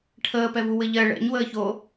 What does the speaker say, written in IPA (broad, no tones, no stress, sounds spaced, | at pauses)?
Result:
ʈʰ əː p ɛ v u w ɘ ʎ ɜ ɭ ɛ̰ ɲ w əː ç o